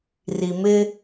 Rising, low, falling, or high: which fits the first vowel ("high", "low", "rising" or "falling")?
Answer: low